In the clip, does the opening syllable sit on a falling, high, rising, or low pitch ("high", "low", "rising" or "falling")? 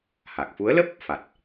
low